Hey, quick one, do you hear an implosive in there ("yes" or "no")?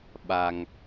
yes